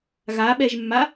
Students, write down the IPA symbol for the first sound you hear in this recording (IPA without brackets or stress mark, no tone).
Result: ɣ